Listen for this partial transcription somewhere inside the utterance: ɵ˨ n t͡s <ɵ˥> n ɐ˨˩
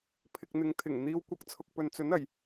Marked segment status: incorrect: ɵ˨˥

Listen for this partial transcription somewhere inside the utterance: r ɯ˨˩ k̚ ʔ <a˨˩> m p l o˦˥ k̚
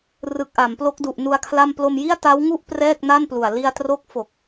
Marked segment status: incorrect: a˩˦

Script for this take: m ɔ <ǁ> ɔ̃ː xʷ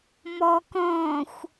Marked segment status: incorrect: k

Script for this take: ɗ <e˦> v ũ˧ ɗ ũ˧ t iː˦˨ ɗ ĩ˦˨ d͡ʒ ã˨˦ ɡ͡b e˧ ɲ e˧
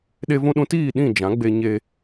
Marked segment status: incorrect: e˧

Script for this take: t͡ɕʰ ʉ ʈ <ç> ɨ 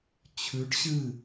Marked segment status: incorrect: ɕ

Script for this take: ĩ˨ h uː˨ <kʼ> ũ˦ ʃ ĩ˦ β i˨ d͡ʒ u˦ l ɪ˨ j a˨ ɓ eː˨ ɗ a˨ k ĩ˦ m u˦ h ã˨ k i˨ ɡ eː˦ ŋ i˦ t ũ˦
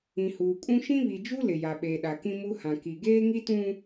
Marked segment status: correct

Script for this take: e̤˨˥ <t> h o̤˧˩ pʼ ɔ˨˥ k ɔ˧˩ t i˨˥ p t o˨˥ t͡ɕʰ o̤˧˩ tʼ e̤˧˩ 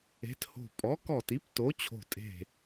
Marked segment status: correct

